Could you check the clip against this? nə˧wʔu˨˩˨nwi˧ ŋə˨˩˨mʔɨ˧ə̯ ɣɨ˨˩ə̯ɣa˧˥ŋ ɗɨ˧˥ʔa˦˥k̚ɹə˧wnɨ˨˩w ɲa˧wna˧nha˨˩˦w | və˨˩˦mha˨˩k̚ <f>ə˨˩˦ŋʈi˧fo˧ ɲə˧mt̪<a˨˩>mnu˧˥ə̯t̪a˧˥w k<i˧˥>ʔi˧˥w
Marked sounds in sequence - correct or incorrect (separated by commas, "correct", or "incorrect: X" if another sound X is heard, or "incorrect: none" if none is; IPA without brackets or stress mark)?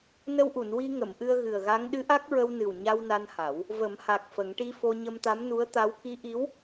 correct, incorrect: a˧˥, correct